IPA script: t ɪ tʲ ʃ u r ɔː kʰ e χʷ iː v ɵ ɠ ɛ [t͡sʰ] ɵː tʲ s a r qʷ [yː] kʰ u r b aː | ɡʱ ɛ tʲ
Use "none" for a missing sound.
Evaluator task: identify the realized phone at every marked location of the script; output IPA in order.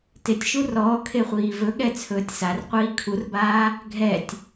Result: t͡sʰ, iː

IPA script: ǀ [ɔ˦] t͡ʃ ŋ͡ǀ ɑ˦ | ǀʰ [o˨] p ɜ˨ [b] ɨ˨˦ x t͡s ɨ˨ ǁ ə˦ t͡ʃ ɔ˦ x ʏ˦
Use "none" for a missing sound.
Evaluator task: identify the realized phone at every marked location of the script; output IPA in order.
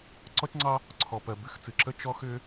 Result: ɔ˦, ɔ˨, b

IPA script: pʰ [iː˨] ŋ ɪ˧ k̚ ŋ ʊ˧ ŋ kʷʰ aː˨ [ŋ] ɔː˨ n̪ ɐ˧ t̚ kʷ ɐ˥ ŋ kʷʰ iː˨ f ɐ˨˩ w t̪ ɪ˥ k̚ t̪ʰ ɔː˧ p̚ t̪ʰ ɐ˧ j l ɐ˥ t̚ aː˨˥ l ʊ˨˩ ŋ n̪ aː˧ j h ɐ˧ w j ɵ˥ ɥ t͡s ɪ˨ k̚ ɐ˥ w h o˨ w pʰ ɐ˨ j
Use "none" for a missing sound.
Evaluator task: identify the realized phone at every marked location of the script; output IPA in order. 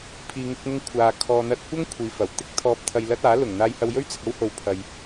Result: iː˨, kʰ

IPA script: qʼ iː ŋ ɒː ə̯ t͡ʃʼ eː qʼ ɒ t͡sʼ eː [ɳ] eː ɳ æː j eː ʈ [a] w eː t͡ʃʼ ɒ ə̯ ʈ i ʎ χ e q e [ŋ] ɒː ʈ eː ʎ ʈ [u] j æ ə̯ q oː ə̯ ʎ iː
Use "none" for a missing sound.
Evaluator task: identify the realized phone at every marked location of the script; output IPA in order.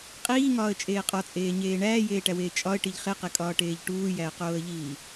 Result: ɲ, æ, kʼ, uː

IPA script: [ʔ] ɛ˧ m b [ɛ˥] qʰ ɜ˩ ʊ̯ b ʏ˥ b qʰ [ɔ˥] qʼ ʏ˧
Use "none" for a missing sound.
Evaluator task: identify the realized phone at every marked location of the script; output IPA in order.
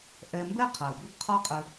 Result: ʔ, ɛ˥, ɔ˥

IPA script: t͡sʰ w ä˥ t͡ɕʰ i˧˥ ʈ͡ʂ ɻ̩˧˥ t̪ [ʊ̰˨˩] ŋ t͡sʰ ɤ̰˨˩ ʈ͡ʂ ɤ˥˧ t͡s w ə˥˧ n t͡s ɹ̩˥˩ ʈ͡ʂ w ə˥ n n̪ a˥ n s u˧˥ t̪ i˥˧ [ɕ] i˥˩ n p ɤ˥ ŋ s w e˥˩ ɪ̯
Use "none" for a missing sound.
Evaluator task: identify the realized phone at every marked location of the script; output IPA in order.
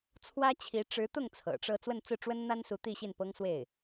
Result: ʊ˥˩, ɕ

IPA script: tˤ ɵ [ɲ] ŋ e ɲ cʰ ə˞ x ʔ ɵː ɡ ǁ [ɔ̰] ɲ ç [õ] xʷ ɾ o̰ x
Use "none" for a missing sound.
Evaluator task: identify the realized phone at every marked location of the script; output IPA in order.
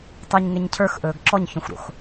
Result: ɲ, ɔ, õ

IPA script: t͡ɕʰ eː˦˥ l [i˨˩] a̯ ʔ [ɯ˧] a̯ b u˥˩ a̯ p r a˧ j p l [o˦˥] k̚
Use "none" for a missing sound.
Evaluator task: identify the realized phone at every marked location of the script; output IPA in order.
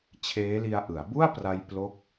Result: i˧, ɯ˩˦, o˦˥

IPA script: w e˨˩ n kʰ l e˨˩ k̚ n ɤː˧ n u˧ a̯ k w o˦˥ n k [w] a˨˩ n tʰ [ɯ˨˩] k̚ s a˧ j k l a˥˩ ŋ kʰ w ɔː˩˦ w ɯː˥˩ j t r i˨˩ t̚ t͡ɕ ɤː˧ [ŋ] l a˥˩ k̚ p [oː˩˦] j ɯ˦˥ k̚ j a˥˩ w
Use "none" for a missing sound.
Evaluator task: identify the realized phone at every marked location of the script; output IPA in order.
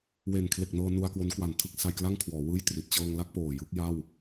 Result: w, ɯ˦˥, ŋ, oː˨˩

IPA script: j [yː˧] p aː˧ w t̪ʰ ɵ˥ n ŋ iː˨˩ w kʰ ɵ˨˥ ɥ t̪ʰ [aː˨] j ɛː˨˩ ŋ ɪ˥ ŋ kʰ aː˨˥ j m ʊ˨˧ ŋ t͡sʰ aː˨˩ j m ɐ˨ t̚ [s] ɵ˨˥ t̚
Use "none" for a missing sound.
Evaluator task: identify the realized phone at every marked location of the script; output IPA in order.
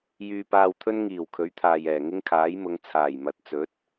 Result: yː˧, aː˨, t͡s

